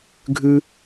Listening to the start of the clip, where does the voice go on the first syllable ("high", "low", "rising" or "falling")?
high